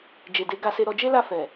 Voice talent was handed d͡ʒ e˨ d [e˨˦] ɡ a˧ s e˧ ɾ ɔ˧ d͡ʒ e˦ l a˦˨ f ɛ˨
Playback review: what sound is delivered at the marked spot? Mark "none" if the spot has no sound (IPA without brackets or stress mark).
e˨˦